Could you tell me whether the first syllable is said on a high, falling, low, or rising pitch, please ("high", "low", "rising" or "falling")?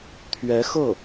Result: rising